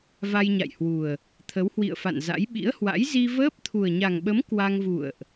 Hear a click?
no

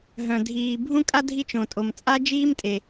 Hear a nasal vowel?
yes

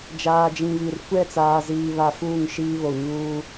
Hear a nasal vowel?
yes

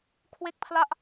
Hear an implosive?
no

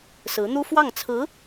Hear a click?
no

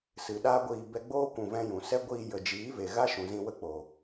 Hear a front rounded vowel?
no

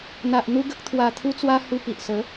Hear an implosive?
no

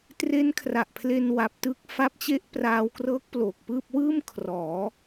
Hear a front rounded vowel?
no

